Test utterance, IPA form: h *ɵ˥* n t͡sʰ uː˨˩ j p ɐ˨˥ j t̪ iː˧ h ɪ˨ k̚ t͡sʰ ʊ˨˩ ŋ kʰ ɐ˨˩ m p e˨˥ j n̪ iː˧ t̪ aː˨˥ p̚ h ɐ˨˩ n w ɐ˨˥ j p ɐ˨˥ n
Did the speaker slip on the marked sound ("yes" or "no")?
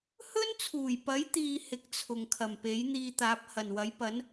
no